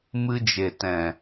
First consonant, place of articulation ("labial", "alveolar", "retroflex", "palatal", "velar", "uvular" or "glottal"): labial